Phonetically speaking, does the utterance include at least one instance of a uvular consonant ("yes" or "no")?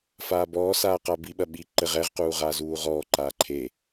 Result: yes